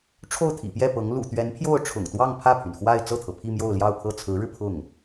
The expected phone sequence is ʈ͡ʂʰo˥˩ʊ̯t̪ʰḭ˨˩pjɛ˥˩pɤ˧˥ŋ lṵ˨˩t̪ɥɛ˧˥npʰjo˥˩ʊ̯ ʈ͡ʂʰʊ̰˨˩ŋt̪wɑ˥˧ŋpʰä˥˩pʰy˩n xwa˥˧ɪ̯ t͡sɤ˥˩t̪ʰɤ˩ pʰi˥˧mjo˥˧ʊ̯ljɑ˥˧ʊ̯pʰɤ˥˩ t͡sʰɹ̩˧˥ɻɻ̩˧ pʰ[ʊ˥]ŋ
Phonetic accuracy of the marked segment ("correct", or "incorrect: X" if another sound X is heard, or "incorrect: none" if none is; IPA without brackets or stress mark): incorrect: ʊ˥˩